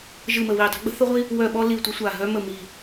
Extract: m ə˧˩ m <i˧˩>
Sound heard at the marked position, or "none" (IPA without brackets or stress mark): i˧˩